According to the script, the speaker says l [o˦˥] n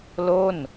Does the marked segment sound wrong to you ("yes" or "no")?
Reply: yes